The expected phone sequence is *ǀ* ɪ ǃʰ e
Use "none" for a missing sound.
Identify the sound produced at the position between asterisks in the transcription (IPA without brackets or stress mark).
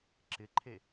ǁ